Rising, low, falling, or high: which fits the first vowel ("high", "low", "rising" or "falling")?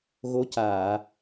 rising